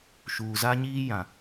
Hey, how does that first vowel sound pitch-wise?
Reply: low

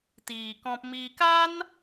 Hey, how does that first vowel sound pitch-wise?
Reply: low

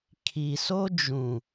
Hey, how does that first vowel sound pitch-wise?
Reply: low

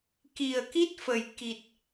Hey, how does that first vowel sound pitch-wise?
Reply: low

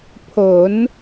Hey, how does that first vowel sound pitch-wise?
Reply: rising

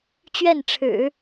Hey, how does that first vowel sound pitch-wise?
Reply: falling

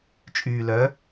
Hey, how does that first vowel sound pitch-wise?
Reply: low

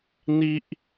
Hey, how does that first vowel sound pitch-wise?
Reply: high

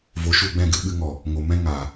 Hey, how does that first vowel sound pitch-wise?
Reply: rising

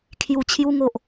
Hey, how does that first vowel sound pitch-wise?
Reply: low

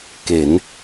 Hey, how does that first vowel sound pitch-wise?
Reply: rising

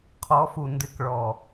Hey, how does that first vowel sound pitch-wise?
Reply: rising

